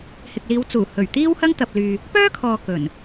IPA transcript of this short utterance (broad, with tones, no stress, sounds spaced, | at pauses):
h ɪ˨ k̚ l iː˨˧ w t͡s uː˨˩ h ɵ˨˩ ɥ t̪ iː˥ w h ɐ˥ ŋ t̪ ɐ˨ p̚ l yː˨ | p œː˥ kʰ ɔː˨ k ɵ˨˩ n